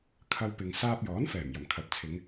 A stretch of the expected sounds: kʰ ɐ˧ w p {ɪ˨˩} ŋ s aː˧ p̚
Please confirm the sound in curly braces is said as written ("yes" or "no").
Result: no